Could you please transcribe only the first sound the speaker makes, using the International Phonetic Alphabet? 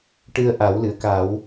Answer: ʈ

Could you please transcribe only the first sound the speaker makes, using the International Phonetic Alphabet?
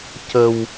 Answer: c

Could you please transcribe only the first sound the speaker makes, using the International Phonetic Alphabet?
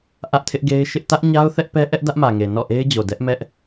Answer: ʔ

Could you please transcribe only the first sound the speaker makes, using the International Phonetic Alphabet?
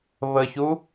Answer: β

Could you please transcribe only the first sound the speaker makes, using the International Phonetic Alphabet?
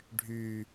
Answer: ɖʱ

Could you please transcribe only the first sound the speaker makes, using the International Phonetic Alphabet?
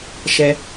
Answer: ʃ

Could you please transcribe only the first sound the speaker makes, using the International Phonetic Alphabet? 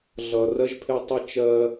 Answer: ɮ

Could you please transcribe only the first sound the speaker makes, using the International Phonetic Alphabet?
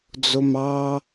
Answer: d͡z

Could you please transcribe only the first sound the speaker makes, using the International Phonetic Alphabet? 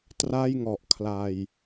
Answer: t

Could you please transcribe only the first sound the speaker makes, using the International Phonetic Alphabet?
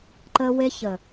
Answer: ǃ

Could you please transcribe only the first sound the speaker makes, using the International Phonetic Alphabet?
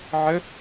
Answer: ʕ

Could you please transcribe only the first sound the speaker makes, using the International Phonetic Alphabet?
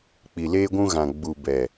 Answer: k͡p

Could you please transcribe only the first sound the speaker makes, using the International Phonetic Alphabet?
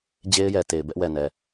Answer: d͡ʑ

